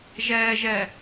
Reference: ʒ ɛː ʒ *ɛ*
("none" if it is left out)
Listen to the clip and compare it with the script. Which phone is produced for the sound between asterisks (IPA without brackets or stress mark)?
ɛ